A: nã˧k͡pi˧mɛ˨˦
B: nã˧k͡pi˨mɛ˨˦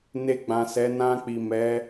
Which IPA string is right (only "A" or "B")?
B